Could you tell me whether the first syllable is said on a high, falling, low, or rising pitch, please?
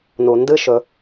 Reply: low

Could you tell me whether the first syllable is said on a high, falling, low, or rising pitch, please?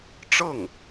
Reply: falling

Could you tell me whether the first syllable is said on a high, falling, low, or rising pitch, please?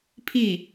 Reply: falling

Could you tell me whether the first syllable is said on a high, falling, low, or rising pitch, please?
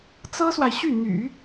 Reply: high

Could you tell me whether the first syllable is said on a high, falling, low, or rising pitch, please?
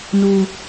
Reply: low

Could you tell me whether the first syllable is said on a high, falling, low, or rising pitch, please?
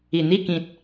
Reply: low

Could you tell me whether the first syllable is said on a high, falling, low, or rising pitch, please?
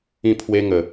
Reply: falling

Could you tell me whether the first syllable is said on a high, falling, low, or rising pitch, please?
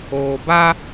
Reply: low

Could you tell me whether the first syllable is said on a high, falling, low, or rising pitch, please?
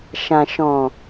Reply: low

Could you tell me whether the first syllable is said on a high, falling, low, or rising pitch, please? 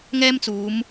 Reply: high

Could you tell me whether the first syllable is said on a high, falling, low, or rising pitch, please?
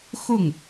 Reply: falling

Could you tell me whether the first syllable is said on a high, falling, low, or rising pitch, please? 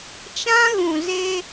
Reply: high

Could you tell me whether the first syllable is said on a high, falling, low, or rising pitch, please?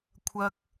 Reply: low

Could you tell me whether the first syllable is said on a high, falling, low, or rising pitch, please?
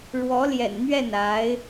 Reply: rising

